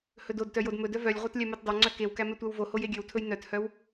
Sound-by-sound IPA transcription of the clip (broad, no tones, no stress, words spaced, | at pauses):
hɵdodtœ jodmɵdœ vœlʲʁʷœt lʲɛmøtdˤøŋ͡ǀœ kewkæ mɛtʷæwvohoj eɡʲøwtʰɵj nœthœw